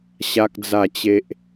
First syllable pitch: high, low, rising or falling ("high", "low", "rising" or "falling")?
high